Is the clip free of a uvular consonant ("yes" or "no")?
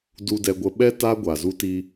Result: yes